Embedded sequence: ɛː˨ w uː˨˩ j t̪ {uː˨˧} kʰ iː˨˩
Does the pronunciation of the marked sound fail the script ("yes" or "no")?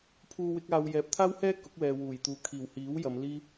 yes